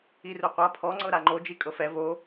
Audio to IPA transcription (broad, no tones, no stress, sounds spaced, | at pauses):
i r u qʷ a pʰ ɔ ŋ͡ǀ ɤ ɾ a ŋ͡ǃ o d͡ʒ i kʼ ɤ f ɛ v o